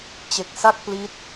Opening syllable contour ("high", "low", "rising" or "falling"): low